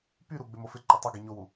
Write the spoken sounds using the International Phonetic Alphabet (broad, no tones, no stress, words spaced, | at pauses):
pyɾu ɡ͡bɪmofɪǃɪ tˤɪɡi ɲowu